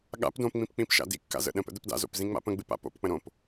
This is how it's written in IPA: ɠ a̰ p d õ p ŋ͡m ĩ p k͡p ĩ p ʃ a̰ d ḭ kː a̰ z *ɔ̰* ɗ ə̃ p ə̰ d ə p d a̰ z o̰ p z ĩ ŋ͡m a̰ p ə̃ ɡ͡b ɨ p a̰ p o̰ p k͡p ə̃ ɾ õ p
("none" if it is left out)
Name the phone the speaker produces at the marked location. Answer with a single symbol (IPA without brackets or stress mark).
ə̰